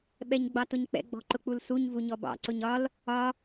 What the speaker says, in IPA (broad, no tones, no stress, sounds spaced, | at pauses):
ɓ ɛ ɲ ɡ͡b ɑ t ʊ ɲ k͡p ɛ̰ ɡ͡b ɔ̤ ǃ ʊ k͡p u l s u ɲ v u ɲ ɔ b ɑ̰ ǀ ʊ ɲ ɒ l | ɒ